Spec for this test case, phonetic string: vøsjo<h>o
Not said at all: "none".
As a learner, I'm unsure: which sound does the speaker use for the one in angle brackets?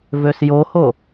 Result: h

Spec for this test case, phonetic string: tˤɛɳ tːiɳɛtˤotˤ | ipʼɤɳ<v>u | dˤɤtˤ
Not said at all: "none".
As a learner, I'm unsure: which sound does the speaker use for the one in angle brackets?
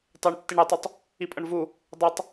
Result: v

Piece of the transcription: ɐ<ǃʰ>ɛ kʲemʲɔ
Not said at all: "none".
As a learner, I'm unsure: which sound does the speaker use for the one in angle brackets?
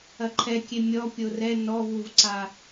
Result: ǃʰ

